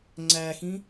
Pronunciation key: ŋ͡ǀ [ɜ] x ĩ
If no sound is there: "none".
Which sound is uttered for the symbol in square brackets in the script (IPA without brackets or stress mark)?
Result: æ